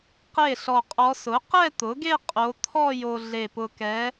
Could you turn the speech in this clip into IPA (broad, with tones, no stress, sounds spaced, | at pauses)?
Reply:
q e˥˩ ɬ ɔ˧˩ qʼ ɔ˧˥ s ʊ˩˥ q ɛ˥˧ t̪ ʊ˩˥ ɡ e˥˧ qʼ o˧˥ t̪ʰ ɔ˥˧ j o˧ ɮ e˧˩ p ʊ˧ k ɛ˧˥